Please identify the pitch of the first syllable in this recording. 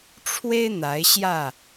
high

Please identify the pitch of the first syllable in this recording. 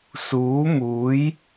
rising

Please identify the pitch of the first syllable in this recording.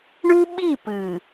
high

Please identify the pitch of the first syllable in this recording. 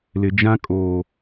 low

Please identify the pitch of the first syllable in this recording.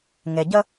low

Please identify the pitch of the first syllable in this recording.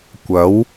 rising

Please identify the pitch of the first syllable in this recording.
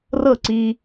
falling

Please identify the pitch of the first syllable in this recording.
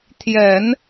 low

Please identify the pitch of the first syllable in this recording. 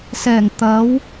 low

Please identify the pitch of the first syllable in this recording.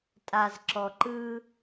low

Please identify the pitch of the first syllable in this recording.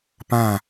falling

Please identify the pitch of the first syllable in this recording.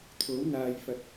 rising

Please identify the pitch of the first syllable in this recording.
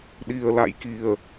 low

